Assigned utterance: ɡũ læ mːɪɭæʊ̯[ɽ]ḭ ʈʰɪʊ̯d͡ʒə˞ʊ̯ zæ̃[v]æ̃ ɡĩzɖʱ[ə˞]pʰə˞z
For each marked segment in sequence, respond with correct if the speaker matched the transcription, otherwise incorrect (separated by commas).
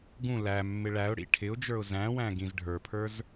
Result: correct, incorrect, correct